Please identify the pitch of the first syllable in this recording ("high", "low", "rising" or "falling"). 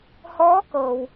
rising